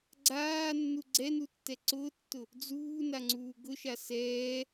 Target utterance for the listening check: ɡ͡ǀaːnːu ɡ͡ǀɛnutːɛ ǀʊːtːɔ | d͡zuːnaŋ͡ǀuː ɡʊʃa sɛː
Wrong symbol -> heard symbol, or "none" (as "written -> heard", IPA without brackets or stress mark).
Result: ɔ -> ʊ